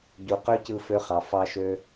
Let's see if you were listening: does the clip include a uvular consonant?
yes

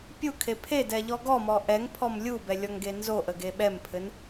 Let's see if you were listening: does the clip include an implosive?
yes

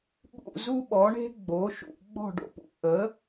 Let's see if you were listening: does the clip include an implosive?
yes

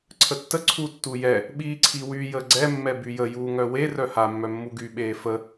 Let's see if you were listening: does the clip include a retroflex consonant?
no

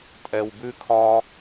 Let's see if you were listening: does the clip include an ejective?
yes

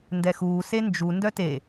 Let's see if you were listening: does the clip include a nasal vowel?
no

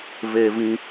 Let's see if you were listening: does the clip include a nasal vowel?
yes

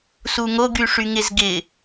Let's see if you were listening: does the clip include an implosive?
no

